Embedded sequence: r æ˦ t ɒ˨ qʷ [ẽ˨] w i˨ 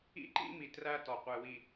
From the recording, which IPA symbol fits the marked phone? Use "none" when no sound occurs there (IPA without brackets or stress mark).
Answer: e˨